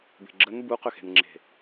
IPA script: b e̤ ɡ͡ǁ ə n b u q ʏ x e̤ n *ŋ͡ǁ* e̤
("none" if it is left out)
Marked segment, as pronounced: ŋ͡ǁ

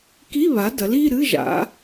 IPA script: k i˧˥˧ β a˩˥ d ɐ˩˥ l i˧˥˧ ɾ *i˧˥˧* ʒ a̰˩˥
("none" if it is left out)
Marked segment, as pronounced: ɨ˧˥˧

